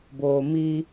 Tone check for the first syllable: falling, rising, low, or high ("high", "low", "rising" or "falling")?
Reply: low